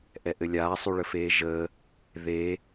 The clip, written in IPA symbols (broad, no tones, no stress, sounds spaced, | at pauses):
ʔ ɛ ʔ ɘ lʲ aː sˤ y ɭ ə f eː ʒ əː | ð eː